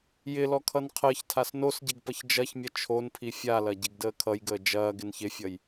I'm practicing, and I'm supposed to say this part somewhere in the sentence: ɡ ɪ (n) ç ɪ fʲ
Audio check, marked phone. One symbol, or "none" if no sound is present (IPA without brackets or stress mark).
n